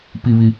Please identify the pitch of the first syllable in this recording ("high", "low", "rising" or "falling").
low